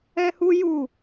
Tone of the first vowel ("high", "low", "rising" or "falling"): high